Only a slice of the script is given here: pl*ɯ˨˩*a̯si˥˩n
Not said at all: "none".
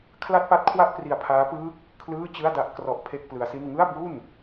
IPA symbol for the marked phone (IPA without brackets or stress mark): ɯ˦˥